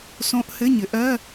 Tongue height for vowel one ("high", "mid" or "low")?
mid